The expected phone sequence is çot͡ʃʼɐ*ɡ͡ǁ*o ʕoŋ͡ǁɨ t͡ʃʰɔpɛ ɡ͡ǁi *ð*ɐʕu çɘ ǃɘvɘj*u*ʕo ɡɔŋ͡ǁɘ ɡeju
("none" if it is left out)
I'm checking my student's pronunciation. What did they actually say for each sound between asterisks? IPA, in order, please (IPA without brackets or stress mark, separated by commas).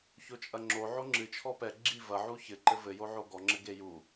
ŋ͡ǁ, v, o